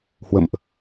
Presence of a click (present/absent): absent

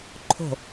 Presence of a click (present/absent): present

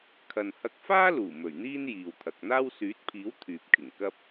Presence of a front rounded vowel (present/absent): present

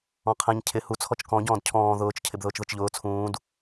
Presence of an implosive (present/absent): absent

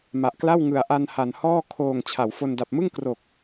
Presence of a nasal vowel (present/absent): absent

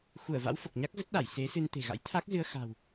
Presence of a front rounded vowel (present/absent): absent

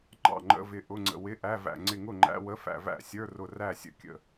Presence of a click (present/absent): present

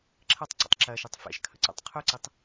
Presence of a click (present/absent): present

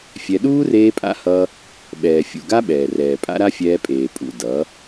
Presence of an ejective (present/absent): present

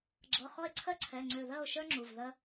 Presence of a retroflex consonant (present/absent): absent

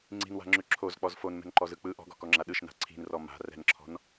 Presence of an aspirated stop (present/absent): present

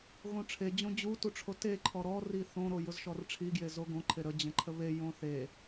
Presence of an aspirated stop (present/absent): present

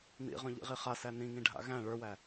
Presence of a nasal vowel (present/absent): present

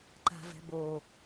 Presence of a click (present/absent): present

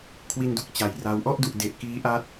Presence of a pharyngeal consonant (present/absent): absent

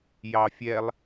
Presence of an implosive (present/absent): absent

